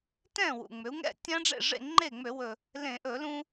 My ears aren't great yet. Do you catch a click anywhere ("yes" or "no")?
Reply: yes